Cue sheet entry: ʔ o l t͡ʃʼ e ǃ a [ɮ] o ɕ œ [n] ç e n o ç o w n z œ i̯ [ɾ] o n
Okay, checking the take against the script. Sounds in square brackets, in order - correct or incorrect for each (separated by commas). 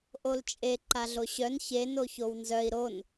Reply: correct, correct, correct